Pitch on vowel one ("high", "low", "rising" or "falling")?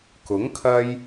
rising